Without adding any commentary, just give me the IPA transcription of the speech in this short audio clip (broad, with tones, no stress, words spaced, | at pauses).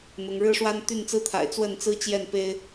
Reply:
n̪ʊ˨˦ŋ ɻɻ̩˦ʂwa˦n t̪y˥˨nt͡sɹ̩˦t̪ʰa̰˨˩ɪ̯ t͡swə˥˨nt͡sɹ̩˦t͡ɕjɛ˥˨n pe˦ɪ̯